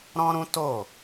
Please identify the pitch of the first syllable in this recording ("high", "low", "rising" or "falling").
high